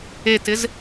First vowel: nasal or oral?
oral